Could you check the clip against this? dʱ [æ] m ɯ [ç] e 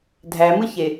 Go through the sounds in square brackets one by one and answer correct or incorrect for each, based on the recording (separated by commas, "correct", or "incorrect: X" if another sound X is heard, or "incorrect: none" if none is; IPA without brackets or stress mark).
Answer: correct, correct